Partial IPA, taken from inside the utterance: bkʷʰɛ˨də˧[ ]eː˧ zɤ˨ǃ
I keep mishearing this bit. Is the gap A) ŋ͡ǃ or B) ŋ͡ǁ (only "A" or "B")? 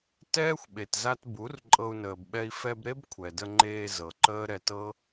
A